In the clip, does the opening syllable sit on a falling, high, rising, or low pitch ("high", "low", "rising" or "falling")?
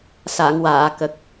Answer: low